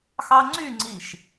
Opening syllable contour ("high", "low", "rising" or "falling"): high